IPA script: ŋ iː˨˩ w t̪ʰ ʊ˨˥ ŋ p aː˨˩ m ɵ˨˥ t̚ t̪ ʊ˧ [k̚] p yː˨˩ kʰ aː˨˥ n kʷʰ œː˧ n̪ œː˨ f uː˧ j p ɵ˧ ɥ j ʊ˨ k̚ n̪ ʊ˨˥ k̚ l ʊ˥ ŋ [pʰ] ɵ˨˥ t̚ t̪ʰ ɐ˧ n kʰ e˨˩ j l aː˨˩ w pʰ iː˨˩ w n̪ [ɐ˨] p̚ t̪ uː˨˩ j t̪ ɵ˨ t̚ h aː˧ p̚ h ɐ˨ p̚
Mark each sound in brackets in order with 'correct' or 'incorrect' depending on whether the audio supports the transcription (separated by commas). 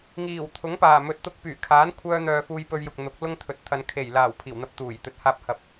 correct, incorrect, incorrect